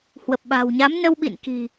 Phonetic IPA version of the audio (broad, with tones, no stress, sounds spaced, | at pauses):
h w ə˨˩ p̚ ɓ a̤˨˩ w ɲ a˨˦ m n ə˧ w ɓ ḭ˧˨ n k i̤˨˩